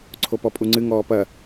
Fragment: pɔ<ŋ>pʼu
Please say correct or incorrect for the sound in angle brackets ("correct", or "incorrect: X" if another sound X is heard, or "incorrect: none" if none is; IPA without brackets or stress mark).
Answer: incorrect: none